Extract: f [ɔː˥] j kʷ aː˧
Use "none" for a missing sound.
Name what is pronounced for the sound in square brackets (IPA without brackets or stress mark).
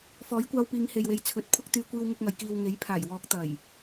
ɔː˨˥